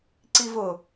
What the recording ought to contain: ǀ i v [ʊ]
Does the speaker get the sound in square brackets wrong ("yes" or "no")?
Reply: no